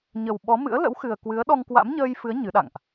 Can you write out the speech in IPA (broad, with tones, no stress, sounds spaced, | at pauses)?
ɲ ə˨˩ w ɓ ɔ˨˦ m ɨ̰˧˥ ə̯ l ə̰˧˥ w x ɨ˨˩ ə̯ k w ɨ˨˦ ə̯ ɗ ɔ˧ ŋ k w a̰˧˥ m ɲ əː˧ j f ɨ˨˦ ə̯ ɲ ɨ˨˦ ɗ a̰˧˨ ŋ ʔ